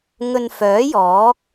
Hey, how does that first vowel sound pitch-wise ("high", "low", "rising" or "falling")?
low